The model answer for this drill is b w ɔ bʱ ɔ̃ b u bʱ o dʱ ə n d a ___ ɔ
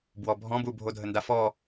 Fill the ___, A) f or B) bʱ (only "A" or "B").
A